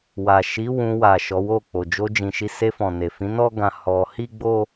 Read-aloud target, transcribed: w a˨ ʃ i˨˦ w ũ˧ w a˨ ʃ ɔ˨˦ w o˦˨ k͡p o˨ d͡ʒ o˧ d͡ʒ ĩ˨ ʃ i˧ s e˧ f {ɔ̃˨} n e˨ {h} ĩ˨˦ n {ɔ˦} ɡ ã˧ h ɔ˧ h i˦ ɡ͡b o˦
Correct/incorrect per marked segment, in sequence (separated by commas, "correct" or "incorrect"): correct, incorrect, correct